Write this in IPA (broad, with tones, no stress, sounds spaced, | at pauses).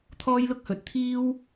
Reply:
t̪ʰ ɔː˥ j l ʊ˥ k̚ h ɵ˨ t̚ t̪ʰ iː˥ w